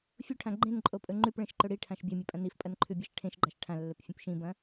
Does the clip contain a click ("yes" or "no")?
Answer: yes